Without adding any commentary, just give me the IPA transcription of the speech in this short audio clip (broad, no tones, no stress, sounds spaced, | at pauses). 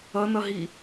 ʌ n ʌ ɦ i